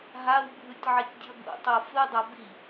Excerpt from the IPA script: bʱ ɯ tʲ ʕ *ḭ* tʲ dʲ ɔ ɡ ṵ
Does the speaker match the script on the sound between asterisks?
no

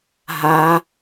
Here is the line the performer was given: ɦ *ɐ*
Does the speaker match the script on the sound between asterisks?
no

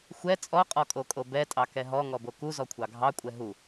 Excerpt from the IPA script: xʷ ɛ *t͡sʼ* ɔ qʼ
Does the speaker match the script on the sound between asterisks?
yes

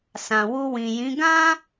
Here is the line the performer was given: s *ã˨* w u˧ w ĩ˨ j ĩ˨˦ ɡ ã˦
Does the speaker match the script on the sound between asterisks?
yes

